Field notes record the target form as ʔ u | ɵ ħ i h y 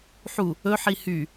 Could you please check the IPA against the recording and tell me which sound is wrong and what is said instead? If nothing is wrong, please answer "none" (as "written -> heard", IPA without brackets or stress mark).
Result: ʔ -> ħ